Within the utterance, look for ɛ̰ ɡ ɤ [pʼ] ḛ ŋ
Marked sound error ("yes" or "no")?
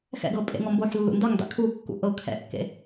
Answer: no